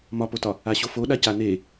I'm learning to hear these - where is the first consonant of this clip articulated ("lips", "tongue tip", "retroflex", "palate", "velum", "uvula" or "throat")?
lips